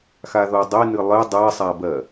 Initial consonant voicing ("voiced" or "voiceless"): voiceless